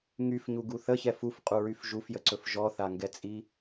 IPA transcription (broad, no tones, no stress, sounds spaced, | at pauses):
ŋ y f ɲ u ɡ u θ ə ç ɛ f u f qʼ u ɹ y f ʒ u f j ə ǀ ɵ f ʒ ɔ θ a ŋ ɡ ɛ t͡sʼ i